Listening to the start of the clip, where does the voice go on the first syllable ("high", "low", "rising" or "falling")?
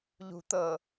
low